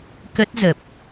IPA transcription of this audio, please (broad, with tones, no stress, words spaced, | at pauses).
kə˦˥t̚zə˨˩p̚